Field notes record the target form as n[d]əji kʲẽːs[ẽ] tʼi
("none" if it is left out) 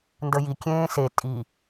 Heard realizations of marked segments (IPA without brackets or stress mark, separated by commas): d, e